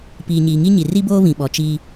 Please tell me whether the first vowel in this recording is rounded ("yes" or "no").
no